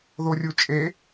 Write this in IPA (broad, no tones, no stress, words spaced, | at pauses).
ðorʲut͡ʃʼe